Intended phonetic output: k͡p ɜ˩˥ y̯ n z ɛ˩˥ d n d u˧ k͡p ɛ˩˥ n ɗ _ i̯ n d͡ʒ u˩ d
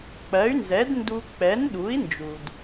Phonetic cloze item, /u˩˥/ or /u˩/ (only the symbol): u˩˥